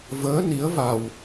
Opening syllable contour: rising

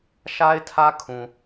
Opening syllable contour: high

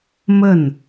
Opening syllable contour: falling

